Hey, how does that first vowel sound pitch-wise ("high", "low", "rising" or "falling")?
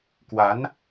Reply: rising